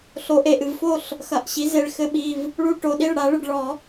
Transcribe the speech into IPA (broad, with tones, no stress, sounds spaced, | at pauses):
ɬ o˩˥ ʔ e˩ ʔ ɨ˩ v f o˥˩ ɬ | x ɐ˩˧˩ ʔ ɕ i˩˥ z e˩˧˩ ɭ x ɘ˦ ɓ i˩˧˩ v | ɭ u˦ ʈ o˩˧˩ ɗ i˥˩ ɭ ɽ a˨˩˦ ɭ ɨ˩ ɖ ɭ ɔ˨˩˦